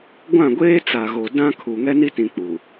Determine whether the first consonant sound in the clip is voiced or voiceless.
voiced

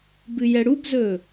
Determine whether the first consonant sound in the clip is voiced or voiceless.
voiced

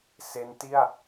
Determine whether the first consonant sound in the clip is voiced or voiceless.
voiceless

